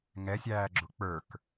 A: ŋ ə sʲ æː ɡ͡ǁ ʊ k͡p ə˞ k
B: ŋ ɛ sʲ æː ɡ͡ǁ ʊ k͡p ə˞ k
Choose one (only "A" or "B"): B